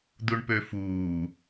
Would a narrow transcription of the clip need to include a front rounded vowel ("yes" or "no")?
yes